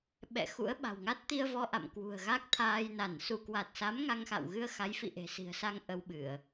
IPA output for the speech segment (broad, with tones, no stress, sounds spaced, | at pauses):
ɓ ɛ̰˧˨ x ṵ˧˥ ə̯ ɓ a̤˨˩ w ŋ a˦˥ t̚ t̪ i˧ ə̯ v ɔ˧ ʔ a̰˧˨ m k w ṳ˨˩ ə̯ ɣ a˦˥ k̚ t̪ʰ aː˧ j n a˧˩ n s u˧˩ k w a˨˩ t̚ s a˨˦ m ŋ a˧ ŋ x a̰˧˨ w ɣ ɨ˧ ə̯ x a˨˦ j f ḭ˧˨ ʔ e̤˨˩ s i̤˨˩ ə̯ s a˧ ŋ ʔ ə˧ w ɓ ɨ˧˩˨ ə̯